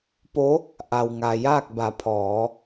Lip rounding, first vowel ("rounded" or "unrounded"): rounded